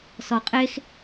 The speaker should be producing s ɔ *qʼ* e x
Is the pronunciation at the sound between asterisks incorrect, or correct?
correct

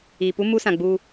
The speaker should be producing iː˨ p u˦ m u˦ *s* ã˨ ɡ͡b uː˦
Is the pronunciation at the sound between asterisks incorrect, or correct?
correct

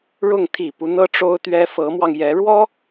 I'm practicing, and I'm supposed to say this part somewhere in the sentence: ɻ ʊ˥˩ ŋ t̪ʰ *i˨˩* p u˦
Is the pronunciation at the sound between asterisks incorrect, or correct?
correct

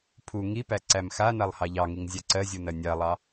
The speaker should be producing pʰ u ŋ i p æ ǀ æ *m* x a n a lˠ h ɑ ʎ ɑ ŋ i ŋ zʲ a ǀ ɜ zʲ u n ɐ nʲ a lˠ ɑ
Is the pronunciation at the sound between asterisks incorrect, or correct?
correct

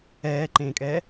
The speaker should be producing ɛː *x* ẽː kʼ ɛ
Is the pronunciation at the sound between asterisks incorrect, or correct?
incorrect: ǃ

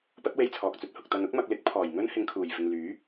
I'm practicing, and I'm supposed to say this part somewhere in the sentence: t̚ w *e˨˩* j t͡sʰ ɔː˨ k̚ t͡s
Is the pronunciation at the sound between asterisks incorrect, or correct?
incorrect: e˧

